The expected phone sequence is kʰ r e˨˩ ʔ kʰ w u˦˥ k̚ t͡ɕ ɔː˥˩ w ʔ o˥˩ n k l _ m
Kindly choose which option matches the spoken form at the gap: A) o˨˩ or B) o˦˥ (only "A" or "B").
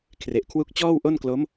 B